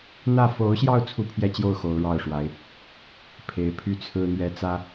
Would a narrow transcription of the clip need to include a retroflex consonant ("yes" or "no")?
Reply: yes